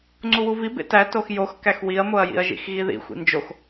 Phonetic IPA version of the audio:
ŋ͡ǀ u w u v i b ḛ t æ t o x j o x k æ x w i ɐ̯ m o ɐ̯ j ḭ ɐ̯ ʒ ḭ x ɣ i ð ḭ xʷ ḭ n d͡ʒ o x

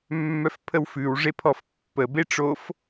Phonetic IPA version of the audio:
mː œ f pʰ ə w f ʉ w ʐ e pʰ ɔ f pː ə b e ʈ͡ʂ o f

